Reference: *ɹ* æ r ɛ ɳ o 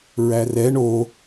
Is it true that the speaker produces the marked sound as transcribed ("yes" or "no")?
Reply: yes